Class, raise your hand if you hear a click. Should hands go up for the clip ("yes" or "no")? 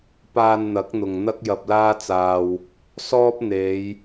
no